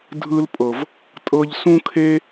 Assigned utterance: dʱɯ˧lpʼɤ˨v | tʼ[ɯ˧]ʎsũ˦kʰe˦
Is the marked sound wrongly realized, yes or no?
yes